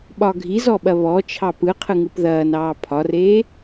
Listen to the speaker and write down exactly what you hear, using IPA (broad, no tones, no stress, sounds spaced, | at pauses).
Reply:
ɓ ɒ ɡʱ i z ɔ ɓ ɐ β ɔ t͡ʃʰ ɑ p ɯ qʰ ɯ ŋ ɯ p ð ɐː n ɑː pʰ ɒ r eː